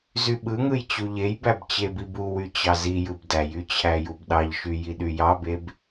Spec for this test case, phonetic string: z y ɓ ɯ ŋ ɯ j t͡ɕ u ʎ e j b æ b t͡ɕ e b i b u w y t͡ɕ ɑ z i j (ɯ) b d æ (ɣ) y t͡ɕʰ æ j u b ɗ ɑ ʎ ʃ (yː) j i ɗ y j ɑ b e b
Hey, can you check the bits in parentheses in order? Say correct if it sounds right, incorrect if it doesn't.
correct, incorrect: j, incorrect: y

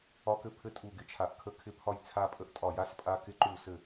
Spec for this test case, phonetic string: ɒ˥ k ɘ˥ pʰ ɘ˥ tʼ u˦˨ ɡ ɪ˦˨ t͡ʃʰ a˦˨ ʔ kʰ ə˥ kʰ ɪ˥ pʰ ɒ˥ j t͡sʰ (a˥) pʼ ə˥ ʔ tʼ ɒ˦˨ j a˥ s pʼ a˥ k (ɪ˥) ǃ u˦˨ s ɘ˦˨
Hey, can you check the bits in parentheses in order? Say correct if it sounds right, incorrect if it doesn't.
correct, correct

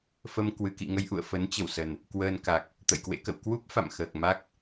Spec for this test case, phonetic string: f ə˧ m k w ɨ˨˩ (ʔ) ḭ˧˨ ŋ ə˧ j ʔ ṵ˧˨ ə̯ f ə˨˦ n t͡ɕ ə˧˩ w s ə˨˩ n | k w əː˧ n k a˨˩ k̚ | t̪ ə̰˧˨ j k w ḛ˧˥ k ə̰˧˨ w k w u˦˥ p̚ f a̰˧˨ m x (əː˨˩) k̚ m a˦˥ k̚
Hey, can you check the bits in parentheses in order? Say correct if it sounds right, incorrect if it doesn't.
incorrect: k, correct

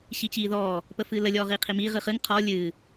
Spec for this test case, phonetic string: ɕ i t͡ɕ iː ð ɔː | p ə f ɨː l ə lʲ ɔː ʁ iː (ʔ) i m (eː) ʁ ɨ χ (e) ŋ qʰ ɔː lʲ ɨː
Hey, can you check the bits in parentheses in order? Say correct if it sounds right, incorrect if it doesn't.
incorrect: qʰ, incorrect: iː, incorrect: ɨ

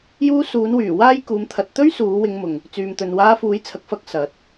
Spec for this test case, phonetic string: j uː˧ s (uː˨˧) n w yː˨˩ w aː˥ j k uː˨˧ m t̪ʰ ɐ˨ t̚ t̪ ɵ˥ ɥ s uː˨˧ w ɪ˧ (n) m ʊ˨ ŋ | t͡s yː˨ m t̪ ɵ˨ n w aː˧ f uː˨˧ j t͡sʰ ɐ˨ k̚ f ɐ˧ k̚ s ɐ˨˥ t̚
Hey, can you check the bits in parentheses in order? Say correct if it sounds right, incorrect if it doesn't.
correct, incorrect: ŋ

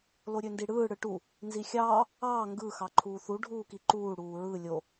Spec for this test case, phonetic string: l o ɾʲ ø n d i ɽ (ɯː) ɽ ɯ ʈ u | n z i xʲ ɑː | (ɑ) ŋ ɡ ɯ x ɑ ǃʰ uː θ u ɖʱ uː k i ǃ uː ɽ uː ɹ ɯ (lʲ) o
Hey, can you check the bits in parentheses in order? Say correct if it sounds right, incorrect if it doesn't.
correct, incorrect: ɑː, correct

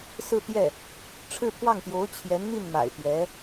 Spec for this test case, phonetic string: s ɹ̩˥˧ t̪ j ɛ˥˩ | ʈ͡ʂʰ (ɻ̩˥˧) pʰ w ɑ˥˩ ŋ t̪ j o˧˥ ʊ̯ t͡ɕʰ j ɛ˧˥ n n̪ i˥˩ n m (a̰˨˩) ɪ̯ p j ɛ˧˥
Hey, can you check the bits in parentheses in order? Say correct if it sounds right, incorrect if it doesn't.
correct, correct

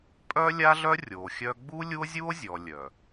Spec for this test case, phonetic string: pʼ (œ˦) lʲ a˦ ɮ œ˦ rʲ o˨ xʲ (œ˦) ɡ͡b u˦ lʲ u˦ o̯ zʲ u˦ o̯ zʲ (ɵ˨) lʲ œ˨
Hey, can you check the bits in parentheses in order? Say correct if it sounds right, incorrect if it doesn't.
correct, correct, incorrect: ɔ˨

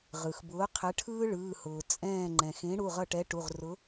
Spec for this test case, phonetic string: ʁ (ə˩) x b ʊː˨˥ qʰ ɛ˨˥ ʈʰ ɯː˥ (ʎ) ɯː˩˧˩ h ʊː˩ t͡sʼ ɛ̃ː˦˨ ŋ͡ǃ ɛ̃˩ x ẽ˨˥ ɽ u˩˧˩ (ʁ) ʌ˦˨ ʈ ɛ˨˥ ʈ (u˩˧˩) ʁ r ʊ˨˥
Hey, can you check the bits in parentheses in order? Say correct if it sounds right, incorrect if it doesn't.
incorrect: ɯ˩, incorrect: ɭ, correct, correct

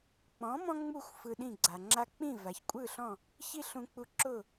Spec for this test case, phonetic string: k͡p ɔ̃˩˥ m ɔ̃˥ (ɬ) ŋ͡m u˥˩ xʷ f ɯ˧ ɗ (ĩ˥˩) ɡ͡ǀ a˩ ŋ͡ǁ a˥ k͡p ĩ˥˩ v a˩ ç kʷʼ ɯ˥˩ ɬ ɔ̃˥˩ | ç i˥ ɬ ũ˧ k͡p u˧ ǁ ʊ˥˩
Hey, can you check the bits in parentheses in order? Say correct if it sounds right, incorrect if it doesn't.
incorrect: none, correct

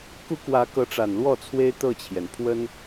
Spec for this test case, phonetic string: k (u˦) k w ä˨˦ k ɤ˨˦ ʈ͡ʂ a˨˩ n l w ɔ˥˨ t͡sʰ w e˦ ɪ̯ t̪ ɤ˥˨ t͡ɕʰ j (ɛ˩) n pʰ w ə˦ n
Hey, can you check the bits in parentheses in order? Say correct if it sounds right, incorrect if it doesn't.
correct, correct

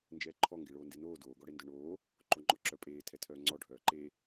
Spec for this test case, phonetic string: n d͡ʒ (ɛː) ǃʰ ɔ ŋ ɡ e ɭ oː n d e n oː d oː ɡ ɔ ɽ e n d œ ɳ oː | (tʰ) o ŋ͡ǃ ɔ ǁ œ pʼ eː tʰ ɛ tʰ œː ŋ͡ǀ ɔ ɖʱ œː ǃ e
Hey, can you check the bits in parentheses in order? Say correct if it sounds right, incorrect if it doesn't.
correct, incorrect: ǃ

